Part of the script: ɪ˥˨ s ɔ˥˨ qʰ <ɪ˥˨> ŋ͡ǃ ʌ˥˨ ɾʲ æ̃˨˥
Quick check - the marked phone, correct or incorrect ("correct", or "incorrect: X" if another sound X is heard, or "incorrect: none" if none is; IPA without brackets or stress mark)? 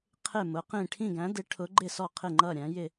correct